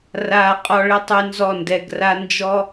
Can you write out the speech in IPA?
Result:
raː˧qʼɔ˧ɭɪ˦tˤy˧ nzɔ˦˨ndɛ˧ɡra˦ nd͡ʒɔ˦

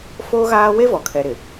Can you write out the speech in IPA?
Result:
foː˦ɣaː˦ we˦vɔ˨kʰɛ˨ ɾɪ˨

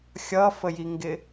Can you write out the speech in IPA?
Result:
xʲʌfəjiŋɡɪ

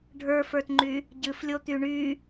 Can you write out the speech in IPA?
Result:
ɖʱə˞fə˞tŋ͡ǃy | ɟɨflʲot̪y ɳy

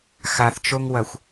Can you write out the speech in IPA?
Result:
xaθt͡ʃoŋwɐxʷ

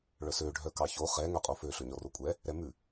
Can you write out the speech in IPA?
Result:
ɭœsø ɖʱœkɑço χɛ ŋœqʼofø ɬøɲɔrokʷʼɛ | ɾɛmʉ

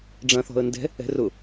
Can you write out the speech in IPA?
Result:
ɖ͡ʐɐ̃θɔ̤ə̯ndɛ̤ | ɛ̤rʊ

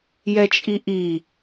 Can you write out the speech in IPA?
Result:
jɛt͡ʃʼiʔi

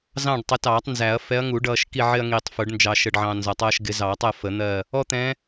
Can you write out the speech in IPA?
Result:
zɑ̃˦˨ɖtˤɪ˨˦tɑː˨˩˦tˤ nzæ˨˩˦ɐ̯fɛ˨˦ɐ̯ŋu˨˩˦ ɖʌː˨ʃ ki˦˨ʕɪ˦ɐ̯ŋiː˨tˤfʊ˨˩˦ɖ nd͡ʒɑ˨ʃə˨ɖʕɑ̃˨ nzɒ˨tˤʌː˦ʃɡɪ˨˦ zɑ˨˩˦tˤɜ˦˨ fə˨˩˦n̪ɜ˦˨ | ɔ˦t̪ɛ̃˨˦

